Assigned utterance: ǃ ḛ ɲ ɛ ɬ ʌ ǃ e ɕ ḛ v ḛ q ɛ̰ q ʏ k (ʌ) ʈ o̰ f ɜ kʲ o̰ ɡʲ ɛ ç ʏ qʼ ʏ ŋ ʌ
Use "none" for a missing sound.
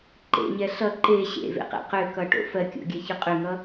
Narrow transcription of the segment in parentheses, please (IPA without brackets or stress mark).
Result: ʌ